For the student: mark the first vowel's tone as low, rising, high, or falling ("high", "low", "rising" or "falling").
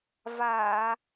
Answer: low